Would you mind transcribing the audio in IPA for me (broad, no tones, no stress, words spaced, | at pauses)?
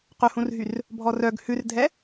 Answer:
qɵhũrɦyr | bʱɔrœɡ hʉrdʱɛ